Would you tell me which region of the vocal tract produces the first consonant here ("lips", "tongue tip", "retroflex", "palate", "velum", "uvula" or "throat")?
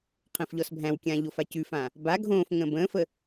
uvula